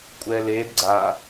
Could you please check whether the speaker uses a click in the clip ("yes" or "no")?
yes